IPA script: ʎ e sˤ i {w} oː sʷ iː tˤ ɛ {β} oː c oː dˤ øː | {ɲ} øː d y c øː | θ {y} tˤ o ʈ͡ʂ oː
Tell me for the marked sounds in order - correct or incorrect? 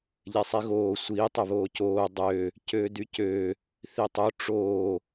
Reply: incorrect: ɣ, correct, incorrect: c, incorrect: i

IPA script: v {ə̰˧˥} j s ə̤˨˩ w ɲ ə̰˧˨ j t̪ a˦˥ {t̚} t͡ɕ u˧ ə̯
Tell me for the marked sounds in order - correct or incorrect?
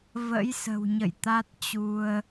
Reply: correct, correct

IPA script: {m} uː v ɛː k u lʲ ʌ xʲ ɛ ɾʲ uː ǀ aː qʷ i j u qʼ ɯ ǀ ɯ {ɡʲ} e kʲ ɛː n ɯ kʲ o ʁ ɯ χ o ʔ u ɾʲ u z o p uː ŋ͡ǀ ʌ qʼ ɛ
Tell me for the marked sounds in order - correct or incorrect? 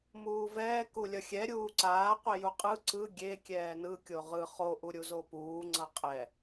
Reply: correct, correct

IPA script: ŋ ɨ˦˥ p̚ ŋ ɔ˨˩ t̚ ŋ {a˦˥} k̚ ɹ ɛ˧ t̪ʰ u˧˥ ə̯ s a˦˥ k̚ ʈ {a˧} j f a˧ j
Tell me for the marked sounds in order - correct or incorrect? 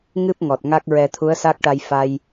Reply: correct, correct

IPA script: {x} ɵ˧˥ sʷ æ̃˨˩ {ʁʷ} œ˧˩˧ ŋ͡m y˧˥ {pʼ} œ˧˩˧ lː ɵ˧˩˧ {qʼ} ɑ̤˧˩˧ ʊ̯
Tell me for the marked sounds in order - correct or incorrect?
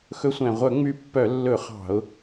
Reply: correct, correct, incorrect: pː, incorrect: χ

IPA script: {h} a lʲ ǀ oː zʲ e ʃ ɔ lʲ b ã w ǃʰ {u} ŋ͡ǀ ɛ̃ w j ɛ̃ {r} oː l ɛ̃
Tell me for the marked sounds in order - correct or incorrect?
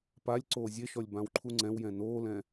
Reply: incorrect: p, correct, incorrect: n

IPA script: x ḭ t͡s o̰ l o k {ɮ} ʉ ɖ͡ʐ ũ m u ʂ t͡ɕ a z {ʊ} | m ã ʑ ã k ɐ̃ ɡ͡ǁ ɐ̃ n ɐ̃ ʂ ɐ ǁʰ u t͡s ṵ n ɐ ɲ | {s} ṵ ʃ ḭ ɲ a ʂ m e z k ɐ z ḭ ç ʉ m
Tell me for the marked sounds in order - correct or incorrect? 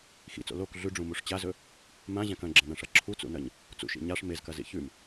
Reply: correct, incorrect: ɵ, incorrect: t͡s

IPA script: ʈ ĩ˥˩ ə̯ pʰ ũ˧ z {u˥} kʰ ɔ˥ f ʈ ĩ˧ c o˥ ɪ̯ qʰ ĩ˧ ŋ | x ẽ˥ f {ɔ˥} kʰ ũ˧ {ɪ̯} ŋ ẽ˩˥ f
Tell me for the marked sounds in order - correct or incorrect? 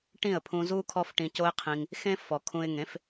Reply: correct, incorrect: ɔ˩, correct

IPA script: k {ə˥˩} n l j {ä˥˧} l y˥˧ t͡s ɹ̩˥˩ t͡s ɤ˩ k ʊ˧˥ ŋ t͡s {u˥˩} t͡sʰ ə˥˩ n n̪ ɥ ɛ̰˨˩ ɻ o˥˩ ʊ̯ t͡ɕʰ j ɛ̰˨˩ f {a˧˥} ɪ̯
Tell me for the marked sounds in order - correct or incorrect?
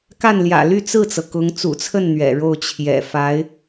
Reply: incorrect: a˥˩, incorrect: ä̰˨˩, incorrect: ṵ˨˩, correct

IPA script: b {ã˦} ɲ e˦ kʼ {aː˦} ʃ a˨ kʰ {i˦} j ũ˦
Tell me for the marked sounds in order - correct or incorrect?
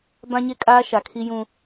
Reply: correct, correct, correct

